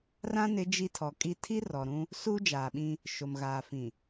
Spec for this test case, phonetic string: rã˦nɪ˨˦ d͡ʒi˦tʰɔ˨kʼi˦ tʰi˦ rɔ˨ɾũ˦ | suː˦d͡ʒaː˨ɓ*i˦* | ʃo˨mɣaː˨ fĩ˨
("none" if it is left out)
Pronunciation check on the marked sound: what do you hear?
ĩ˦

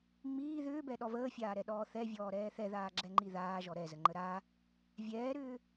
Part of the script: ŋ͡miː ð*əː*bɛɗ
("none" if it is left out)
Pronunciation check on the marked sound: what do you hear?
ʏː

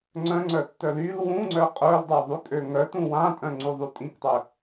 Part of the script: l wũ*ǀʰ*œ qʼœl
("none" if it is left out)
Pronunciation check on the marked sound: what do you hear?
ŋ͡ǀ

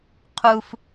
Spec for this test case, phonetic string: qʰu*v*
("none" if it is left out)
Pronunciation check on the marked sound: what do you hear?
f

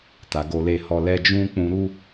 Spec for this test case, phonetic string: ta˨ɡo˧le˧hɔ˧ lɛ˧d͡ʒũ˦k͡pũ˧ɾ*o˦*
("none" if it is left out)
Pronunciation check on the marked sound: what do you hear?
u˦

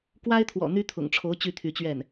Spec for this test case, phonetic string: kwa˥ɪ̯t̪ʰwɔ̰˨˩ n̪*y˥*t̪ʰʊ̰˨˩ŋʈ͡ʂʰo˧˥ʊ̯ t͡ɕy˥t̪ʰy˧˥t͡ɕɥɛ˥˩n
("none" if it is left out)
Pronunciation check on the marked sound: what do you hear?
y˥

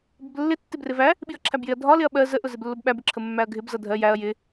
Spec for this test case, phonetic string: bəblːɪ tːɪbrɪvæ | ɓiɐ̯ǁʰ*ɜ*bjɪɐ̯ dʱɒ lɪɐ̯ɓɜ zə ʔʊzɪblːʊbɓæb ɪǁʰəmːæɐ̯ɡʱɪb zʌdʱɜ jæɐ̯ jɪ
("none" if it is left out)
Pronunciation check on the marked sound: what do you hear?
æ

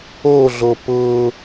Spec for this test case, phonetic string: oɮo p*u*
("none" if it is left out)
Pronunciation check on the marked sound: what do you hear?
ʊ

